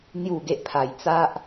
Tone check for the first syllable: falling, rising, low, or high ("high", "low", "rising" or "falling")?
falling